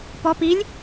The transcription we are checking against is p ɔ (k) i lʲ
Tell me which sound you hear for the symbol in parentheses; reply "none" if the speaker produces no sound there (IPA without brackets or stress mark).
p